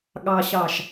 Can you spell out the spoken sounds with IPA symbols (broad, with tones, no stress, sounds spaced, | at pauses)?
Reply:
ɠ ɑ˨ ɕ ɑ˨ ʃ